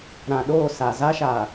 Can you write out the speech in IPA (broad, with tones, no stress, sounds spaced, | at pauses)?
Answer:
ɾ ã˨ ɗ oː˦˨ s a˨ z a˦ ʃ a˨